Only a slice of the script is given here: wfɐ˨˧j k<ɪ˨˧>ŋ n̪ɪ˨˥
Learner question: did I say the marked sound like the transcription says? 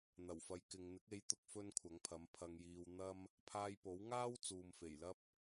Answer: no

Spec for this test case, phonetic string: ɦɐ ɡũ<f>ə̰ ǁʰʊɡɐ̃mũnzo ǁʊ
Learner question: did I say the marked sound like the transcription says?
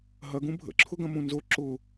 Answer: no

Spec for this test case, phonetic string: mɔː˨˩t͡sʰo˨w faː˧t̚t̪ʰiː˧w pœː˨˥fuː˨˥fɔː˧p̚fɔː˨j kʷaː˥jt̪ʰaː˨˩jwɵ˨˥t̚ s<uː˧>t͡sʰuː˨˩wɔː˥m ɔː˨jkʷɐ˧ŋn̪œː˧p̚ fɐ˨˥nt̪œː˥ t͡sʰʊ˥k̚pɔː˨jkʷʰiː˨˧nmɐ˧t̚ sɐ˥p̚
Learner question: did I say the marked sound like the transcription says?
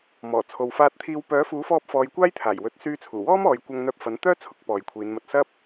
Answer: no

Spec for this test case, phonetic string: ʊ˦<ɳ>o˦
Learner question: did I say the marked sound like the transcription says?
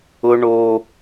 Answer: yes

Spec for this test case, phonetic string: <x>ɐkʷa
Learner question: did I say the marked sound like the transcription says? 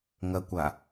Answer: no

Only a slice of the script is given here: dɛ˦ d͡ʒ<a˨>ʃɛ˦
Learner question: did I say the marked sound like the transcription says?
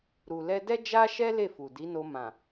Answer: no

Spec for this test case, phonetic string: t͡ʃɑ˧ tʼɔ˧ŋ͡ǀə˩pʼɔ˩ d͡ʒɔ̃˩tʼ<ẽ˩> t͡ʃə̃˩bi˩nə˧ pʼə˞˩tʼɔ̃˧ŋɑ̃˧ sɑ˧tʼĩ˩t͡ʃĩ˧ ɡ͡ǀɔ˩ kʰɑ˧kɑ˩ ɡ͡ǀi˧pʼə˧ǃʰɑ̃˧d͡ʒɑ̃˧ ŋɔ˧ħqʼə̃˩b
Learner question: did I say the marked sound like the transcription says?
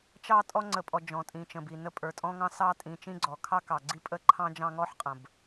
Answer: no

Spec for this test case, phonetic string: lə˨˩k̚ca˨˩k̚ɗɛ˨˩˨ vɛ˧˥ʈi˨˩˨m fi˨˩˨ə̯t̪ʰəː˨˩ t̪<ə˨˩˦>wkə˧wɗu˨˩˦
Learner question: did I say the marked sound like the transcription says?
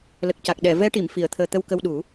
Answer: no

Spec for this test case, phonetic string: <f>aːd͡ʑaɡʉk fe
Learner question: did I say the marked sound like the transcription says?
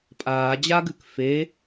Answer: no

